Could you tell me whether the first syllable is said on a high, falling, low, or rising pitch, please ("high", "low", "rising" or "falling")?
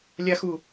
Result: high